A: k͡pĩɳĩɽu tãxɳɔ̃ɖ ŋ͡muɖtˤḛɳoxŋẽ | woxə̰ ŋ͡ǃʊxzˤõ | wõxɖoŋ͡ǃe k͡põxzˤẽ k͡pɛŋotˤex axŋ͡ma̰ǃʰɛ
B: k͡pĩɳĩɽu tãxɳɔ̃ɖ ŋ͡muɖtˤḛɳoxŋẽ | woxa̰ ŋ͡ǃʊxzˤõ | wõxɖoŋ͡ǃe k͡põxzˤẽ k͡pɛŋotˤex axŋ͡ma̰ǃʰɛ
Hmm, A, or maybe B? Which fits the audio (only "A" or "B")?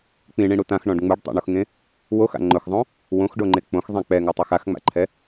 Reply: B